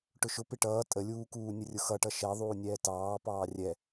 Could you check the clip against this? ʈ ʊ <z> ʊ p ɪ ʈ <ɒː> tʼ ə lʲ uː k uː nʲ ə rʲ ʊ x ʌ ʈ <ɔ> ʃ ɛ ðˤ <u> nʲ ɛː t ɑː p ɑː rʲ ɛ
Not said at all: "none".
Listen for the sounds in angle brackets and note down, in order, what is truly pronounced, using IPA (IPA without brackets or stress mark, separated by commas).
ʃ, ʌː, ʌ, uː